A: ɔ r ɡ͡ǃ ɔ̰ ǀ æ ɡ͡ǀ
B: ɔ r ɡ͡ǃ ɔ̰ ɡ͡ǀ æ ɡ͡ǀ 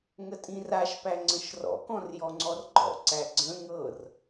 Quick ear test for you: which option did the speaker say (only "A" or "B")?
A